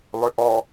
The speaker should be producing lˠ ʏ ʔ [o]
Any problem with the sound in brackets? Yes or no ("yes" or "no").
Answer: yes